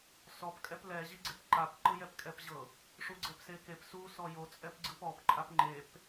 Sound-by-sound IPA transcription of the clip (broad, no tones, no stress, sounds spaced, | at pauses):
s ɔ p kʼ ɛ p l ɛ ʑ i ɡ͡ǀ e p ǃ a p ǃ ɯ j ɛ p kʼ ɛ p ʑ ɤ | ʂ u ɡ͡ǀ ɛ p s e k e p s u s ɔ j o t͡sʼ ɛ p ɡ͡ǀ ɯ p ɔ p ǃʼ a p ŋ͡ǃ e p